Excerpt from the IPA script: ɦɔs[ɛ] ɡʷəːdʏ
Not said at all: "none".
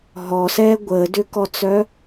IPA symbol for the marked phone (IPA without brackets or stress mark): ɛː